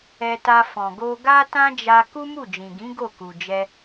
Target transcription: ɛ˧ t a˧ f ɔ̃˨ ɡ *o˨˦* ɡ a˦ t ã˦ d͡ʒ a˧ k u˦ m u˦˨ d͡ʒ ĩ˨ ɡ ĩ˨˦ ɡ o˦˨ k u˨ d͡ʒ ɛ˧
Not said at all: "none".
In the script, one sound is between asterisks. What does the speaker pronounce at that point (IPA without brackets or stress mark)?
o˧